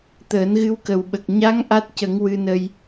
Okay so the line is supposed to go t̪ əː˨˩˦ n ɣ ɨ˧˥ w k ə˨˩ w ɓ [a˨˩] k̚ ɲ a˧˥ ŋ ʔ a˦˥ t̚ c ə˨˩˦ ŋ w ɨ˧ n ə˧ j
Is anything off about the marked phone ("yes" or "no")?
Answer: yes